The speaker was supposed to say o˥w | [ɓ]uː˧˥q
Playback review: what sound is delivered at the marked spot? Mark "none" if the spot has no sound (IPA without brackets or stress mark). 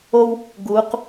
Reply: ɡ